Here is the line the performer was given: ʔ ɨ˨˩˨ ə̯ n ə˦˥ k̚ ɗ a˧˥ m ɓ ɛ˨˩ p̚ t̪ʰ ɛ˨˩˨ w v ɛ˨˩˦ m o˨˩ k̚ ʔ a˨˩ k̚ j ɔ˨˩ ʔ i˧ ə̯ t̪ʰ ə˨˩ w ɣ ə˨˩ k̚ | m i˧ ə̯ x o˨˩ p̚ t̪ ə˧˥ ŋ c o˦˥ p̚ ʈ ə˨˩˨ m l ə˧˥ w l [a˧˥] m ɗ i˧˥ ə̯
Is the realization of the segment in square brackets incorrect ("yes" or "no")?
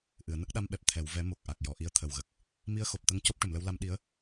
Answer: no